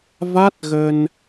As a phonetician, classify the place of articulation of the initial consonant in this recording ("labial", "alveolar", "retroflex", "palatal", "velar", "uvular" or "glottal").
labial